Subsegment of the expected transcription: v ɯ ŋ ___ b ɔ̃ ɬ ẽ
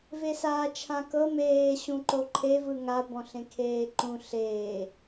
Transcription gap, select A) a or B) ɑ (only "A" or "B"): A